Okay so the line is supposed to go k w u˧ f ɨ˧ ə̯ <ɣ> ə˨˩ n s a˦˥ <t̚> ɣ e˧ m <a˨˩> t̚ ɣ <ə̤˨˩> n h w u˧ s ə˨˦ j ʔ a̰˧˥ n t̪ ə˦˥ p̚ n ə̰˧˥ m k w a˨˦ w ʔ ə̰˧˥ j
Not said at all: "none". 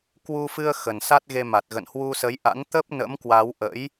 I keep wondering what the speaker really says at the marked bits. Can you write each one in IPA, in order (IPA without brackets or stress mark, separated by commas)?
x, t̚, a˨˩, ə̰˧˨